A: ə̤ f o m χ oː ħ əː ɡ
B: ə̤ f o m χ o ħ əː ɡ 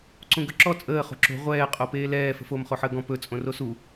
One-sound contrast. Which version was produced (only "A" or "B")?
B